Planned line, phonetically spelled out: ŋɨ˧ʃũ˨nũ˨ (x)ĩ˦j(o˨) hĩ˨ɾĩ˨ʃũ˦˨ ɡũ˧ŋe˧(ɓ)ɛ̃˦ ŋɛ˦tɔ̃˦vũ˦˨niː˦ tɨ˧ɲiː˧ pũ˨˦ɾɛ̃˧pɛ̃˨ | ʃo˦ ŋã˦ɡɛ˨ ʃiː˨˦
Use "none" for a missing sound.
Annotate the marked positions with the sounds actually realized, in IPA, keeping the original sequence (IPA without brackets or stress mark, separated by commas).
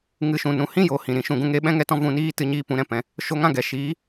h, o˨, ɓ